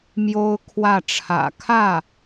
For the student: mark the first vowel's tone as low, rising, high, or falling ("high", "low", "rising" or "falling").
high